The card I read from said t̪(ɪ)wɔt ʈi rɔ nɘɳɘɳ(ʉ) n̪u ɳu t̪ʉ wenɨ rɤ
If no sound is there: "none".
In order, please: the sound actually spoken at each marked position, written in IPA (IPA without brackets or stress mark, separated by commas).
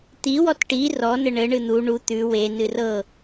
i, ɨ